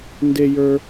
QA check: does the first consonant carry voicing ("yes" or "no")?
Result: yes